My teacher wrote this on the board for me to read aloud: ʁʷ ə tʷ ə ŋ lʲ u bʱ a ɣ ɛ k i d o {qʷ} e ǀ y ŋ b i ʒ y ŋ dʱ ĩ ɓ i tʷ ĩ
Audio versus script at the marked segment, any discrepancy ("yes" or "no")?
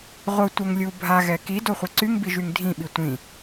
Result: yes